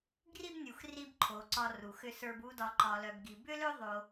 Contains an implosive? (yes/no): no